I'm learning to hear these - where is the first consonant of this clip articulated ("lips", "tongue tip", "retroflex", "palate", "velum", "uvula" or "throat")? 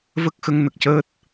lips